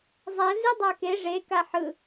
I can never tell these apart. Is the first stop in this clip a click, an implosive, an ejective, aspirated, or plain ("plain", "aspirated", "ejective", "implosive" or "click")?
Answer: plain